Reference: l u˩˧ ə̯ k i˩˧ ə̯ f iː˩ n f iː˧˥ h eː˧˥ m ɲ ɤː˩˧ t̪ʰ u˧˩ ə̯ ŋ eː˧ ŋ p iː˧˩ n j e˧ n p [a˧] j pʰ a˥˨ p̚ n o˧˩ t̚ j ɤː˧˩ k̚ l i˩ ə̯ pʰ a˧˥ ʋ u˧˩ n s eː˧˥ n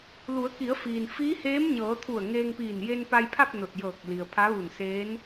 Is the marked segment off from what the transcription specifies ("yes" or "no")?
no